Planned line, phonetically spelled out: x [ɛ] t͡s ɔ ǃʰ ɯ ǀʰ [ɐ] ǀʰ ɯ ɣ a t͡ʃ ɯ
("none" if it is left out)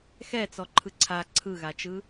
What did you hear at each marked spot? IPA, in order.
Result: ɛ, a

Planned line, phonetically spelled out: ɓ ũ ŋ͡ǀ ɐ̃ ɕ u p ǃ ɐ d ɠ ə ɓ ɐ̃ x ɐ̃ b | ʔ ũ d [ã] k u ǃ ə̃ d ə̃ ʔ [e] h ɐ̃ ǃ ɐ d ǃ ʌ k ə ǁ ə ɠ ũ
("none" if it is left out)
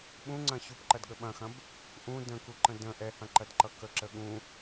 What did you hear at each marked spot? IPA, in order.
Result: ə̃, ɛ

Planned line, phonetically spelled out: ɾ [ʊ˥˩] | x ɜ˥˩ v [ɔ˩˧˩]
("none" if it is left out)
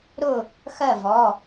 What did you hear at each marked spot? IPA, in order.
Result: ʊ˥˩, ɔ˩˧˩

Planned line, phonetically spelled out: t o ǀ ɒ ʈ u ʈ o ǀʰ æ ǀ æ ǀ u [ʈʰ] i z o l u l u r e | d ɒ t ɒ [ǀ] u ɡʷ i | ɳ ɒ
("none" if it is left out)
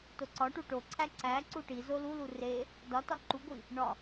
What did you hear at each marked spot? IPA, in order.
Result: ʈ, ǃ

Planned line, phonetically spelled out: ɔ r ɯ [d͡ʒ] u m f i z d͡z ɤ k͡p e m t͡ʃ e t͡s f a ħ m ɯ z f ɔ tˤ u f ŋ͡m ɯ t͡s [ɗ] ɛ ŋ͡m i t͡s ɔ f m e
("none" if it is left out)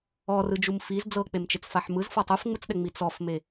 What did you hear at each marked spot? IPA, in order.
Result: d͡ʒ, ɗ

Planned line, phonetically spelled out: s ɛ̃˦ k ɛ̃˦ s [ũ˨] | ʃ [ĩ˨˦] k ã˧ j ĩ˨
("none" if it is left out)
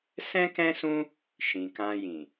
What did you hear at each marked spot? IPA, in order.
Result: ũ˦, ĩ˨

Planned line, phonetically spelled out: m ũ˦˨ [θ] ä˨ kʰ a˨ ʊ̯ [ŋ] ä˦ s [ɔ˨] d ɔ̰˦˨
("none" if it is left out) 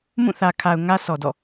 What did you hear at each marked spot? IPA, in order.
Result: θ, ŋ, ɔ˨

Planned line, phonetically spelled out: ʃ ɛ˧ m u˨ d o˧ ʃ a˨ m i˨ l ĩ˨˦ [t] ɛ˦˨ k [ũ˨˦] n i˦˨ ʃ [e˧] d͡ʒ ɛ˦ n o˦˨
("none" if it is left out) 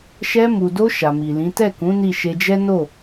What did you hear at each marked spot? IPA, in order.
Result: t, ũ˨˦, e˧

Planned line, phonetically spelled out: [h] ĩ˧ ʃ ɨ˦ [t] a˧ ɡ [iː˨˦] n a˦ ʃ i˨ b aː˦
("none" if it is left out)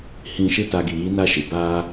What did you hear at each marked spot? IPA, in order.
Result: h, t, iː˨˦

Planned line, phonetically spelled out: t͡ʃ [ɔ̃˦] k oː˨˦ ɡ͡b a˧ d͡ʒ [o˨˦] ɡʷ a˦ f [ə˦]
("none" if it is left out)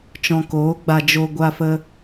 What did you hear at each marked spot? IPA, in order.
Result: ɔ̃˨, o˧, ə˦

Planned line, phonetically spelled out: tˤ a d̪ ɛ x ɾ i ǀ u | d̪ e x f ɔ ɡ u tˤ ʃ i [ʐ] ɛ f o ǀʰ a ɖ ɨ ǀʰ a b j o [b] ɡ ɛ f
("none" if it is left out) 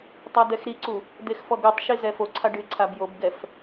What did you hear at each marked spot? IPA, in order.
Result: z, b

